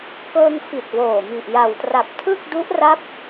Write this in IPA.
kɤː˧ŋfi˨˩t̚ woː˨˩ mi˨˩ʔja˨˩wtra˨˩p̚ tʰɯ˥˩k̚du˦˥ʔra˦˥p̚

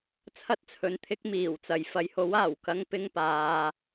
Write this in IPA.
t͡sʰɐ˥t̚t͡sʰɵ˨˧nt̪ʰɪ˥k̚ miː˨˩wt͡sɐ˨j fɐ˨˧jho˨˥w aː˨˩wkɐ˥ŋpɪ˥ŋpaː˨˧

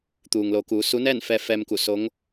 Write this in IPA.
t̪uː˩ŋlo˩˧kuː˩˧ su˧˥ nɛː˥˨nfɛː˧fɛː˧mku˧˩ so˧˥ŋ

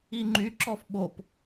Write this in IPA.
iŋ͡ǃy ǁɔfɓop

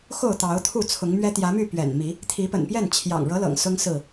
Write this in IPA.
xo˥˨ʊ̯t̪ɑ˨˦ʊ̯t̪ʰu˥˨ t͡sʰʊ˨˦ŋmɥɛ˦ t̪jä˨˦my˥˨ pɥɛ̰˨˩nmi˨˦ | t̪ʰi˨˦pə̰˨˩npjɛ˥˨n t͡ɕʰjɑ̰˨˩ŋɻɤ˨˦lɤ̰˨˩ŋ sʊ˦ŋsɹ̩˥˨

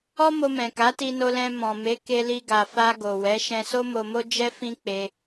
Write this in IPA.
ɔ˦mo˧mɛ̃˨ ka˨˦ti˧no˧lɛ̃˧ mɔ̃˨me˨˦ ke˧li˧ɡa˨fa˧ ɡo˨wɛ˨˦ ʃɛ̃˧so˦mo˧mo˦ d͡ʒɛ˦ fĩ˦k͡pe˧

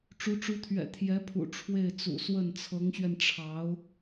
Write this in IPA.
ʈ͡ʂu˧˥ʈ͡ʂu˧˥t̪ʰɥɛ̰˨˩ t̪ʰjɛ˧˥pʰṵ˨˩ ʈ͡ʂʰwe˥˩ɪ̯ t͡sṵ˨˩ swə˥˩n t͡sʰɤ˧˥ŋɕɥɛ˧nʈ͡ʂʰɑ˧˥ʊ̯

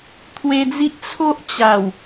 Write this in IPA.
t̪ʰwe˧d͡zi˦ʔ t͡sʰo˦ʔt͡ɕa˨˩w

